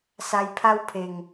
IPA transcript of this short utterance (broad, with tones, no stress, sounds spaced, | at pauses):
s a˧ j pʰ a˦ w pʰ e˨˩ ŋ